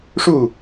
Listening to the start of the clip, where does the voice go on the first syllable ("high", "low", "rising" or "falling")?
falling